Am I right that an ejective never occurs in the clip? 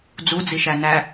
yes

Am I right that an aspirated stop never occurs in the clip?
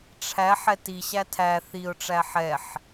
no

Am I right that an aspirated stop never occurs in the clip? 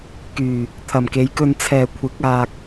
no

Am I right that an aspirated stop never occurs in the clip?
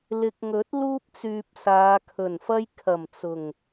no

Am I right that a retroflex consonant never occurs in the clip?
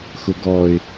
yes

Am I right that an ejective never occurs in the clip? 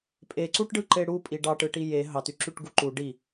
no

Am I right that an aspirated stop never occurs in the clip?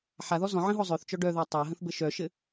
yes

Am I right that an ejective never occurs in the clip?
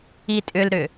no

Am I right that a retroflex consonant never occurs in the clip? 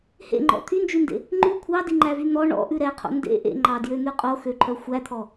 no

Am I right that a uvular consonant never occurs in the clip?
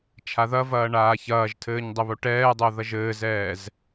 yes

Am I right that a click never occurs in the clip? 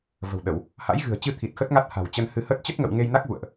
yes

